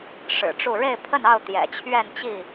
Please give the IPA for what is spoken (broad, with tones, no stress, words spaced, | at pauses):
ʂɻ̩˨˩ʈ͡ʂu˥˨ ɻe˥˨ɪ̯pʰə˥˨nɑ˥˨ʊ̯ t̪jɛ̰˨˩t͡ɕʰɥɛ˥˨nt͡ɕi˥˨